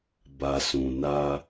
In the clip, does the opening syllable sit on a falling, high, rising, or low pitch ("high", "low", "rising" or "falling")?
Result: low